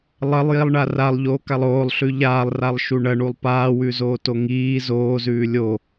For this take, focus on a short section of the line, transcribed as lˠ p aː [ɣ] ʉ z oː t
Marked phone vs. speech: incorrect: w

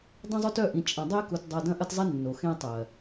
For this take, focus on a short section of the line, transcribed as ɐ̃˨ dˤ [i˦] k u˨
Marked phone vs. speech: incorrect: e˦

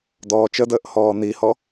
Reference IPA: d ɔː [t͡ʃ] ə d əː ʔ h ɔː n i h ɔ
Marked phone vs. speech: correct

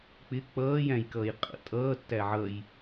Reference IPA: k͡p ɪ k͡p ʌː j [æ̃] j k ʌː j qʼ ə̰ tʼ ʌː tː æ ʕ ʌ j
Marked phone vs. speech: correct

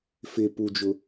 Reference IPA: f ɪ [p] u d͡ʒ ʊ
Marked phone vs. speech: correct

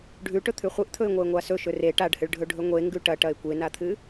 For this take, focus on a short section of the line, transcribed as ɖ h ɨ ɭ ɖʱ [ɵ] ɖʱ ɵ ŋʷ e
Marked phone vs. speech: correct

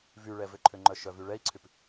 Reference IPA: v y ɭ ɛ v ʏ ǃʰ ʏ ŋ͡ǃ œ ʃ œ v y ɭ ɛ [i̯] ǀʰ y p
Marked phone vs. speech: correct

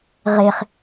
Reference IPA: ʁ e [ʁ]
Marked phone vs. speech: incorrect: χ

